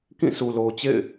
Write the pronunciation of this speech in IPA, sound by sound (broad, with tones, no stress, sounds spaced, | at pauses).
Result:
k ĩ˦˨ sʰ u˨ l o˨ ʊ̯ t͡ɕ ḛ˦˨ ɪ̯